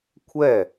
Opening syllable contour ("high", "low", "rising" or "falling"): falling